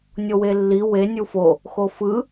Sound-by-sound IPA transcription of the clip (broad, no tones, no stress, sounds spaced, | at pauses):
nʲ o w e lː i w e nʲ u f o | x o f ɯ